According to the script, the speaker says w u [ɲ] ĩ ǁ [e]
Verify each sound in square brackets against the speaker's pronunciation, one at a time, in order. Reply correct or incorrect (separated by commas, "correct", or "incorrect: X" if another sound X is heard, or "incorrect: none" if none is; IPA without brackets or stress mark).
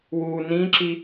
incorrect: n, incorrect: i